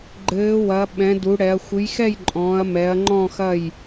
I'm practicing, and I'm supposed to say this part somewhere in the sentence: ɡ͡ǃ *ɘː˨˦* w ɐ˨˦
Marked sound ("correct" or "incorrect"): correct